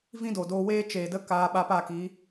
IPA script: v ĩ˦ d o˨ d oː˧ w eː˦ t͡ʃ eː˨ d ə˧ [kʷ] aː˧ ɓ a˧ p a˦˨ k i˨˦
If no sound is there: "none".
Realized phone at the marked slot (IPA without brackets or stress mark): k